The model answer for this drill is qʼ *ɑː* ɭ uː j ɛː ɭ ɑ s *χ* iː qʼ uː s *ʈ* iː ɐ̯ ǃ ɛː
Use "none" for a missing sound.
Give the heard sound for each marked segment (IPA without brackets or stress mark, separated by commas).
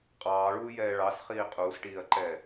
ɑː, χ, ʈ